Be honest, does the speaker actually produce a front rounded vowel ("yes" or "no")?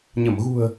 no